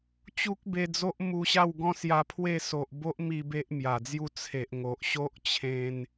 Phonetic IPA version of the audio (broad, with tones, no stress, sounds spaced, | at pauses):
t͡ɕ u˦ k̚ b e˧ d͡z o˦ ʔ m u˧ ɕ a˥˧ w ɡ ɔ̃˦ s j a˧ pʰ w e˥˧ s o˨ ʔ b o˦ ʔ m i˧ b e˦ ʔ m j a˨˩ d͡z j u˥˧ t͡sʰ e˨ ʔ ŋ o˨ ʔ ɕ o˦ ʔ t͡ɕʰ ẽ˧ n